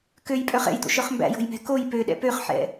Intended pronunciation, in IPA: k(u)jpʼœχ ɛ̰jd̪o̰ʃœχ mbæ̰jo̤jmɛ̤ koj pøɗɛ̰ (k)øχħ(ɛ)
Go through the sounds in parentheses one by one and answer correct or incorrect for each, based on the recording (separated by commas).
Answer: incorrect, incorrect, incorrect